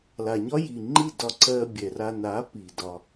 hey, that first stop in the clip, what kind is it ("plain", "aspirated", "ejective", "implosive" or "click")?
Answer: click